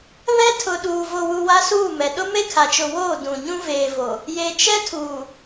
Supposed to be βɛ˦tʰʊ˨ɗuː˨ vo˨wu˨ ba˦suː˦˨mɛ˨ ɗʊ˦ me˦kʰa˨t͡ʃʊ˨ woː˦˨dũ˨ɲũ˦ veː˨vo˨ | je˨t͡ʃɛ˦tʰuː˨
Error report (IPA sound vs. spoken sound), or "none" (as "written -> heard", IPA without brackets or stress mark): b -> w